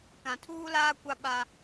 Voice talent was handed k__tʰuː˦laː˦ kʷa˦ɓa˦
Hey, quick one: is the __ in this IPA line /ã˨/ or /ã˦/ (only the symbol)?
ã˨